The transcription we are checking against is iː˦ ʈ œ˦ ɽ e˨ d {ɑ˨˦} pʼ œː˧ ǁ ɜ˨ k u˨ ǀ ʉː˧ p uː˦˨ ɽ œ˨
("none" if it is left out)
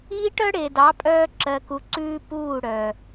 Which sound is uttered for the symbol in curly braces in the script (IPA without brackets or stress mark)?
ɑ˨˦